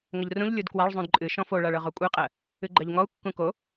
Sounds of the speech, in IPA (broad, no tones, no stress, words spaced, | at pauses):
ŋəʎrũʎ lʲudkwaɭ zˤũdǃʼɨ ʃɔ̃foɭaɭɤʁ okʷʼɨqʼɜ | ɨɡ͡ǃɜʎŋɔu̯ kːũko